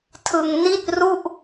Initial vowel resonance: oral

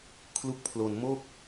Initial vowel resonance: oral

